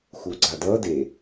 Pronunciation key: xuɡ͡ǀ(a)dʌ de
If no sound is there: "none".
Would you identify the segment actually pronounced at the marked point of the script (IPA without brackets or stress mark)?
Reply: a